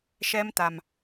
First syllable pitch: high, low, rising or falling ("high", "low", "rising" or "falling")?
high